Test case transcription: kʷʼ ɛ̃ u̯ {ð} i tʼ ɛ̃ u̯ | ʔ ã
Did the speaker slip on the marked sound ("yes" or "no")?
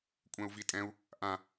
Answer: yes